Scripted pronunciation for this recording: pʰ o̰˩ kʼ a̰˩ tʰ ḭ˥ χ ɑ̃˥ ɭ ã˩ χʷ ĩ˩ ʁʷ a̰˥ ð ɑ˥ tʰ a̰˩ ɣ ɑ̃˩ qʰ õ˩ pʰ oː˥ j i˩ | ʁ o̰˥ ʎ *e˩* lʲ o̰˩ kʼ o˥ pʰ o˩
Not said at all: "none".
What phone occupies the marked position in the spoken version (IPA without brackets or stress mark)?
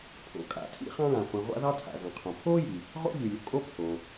y˩